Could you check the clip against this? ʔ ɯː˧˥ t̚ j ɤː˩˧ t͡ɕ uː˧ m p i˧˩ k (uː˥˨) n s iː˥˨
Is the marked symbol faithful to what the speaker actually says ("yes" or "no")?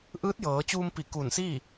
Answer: no